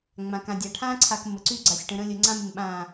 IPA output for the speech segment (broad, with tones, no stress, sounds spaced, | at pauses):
ŋ͡m ã˨ k ã˨ dʲ a˨ ʈʰ ã˦ ǀʰ a˨ k m ə˨ ǀ y˦ ɡ͡ǀ a˨ sʲ ʈ ə̃˨ ɾ ə̃˦ lʲ ə˨ ŋ͡ǀ ã˦ m ɪ˨ m ɓ ã˦˨